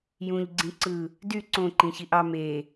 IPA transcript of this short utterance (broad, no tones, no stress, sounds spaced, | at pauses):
j ũ ʎ ɡ͡ǀ ĩ ǀ ɯ | d y ǀ õ ǃ ĩ ç i ʔ ɑ m e